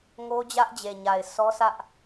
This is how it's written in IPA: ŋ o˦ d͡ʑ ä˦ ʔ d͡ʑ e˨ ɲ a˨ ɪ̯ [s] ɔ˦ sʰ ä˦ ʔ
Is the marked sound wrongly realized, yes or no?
no